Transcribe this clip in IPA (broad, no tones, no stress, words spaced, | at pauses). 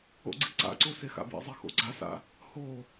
o̰ɡ͡ǀiǀa̰ǀo sexa̰bḭzˤe xo̰ɡ͡ǀasa̰ | ho